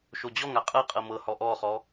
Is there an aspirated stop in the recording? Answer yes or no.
no